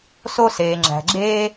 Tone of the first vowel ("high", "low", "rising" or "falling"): high